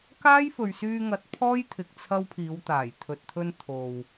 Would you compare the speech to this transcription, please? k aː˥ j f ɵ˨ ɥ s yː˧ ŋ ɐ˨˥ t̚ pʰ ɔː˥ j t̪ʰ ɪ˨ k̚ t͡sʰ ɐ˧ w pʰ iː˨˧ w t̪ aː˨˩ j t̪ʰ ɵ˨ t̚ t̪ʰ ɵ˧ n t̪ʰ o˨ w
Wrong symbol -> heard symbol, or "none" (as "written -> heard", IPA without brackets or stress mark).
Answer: none